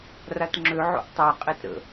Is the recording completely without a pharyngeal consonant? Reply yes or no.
no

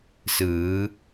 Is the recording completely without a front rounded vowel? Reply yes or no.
yes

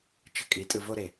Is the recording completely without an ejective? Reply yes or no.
no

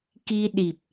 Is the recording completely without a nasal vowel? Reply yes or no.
yes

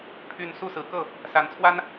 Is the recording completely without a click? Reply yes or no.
yes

